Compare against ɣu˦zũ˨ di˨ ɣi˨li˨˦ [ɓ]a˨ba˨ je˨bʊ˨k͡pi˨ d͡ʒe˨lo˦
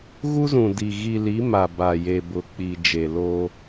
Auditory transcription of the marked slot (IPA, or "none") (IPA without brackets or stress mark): m